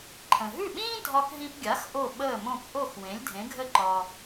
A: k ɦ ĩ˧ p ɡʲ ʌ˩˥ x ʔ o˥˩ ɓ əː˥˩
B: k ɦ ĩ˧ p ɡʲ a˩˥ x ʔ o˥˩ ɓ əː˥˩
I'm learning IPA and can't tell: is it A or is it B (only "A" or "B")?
B